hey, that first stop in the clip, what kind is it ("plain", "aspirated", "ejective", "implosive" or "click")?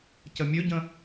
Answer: plain